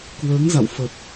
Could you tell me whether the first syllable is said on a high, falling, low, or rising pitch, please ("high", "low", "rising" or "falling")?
rising